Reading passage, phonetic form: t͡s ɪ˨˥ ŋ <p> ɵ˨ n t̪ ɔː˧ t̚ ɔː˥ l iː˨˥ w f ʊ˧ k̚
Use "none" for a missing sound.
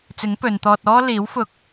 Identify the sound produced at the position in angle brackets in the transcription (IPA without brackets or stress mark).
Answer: p